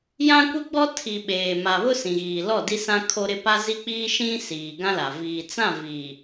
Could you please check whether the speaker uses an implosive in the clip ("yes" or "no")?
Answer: yes